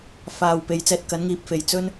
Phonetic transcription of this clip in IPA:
f aː˨ w p e˨ j t͡s ɛː˧ t̚ k ɐ˨˥ n ŋ iː˨˥ p̚ f e˨ j t͡s ɵ˥ n

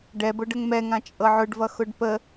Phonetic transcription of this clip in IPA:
ɖ ɛ b ʊ ɖ ə ŋ m ɛ ŋ ã t͡ʃʼ ɤ ʕ ʊ ɖ v ʌ x ʊ ɖ p ə

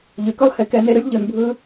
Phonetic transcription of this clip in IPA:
ʎ y˨ k ɯ˦ lˠ h e˧ k ɛ˧ n e˧ ɾ ɯ˦ lʲ ʎ ɯ˧ n bʱ ɯ˦

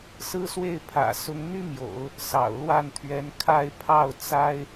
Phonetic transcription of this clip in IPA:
s ɹ̩˥ s w e˥˩ ɪ̯ pʰ ä̰˨˩ s ʊ˧˥ ŋ n̪ y˥ m j o̰˨˩˦ ʊ̯ | s ɑ̰˨˩ ʊ̯ l w a˥˩ n t̪ʰ ɥ ɛ˧˥ n kʰ a˥˧ ɪ̯ pʰ ɑ˥˩ ʊ̯ t͡s a˥ ɪ̯

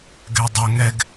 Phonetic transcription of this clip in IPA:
ɡ ɛ dˤ o ŋ ɛ ɡ

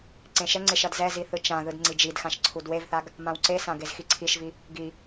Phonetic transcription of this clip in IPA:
ǀ ẽ ʃ ɛ ŋ͡ǀ e ʃ ʌ d z ɛ z i θ ɯ t͡ʃ ã ð ɯ d ŋ͡ǀ i d͡ʒ i d x ã ʃ ǀʰ u d w e v θ a ɡ | m ã w ǀ e s ã ɡ e z x i ǀʰ i ʃ v i | ɡ i

